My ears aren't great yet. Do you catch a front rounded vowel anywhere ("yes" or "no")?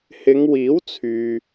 yes